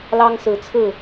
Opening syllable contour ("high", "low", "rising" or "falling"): high